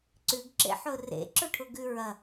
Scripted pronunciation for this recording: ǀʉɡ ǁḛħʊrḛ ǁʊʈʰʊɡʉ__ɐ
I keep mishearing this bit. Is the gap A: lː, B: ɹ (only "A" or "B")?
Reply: B